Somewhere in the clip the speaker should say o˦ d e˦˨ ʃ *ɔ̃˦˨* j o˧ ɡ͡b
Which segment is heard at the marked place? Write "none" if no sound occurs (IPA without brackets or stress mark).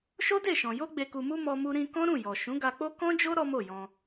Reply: ɔ̃˨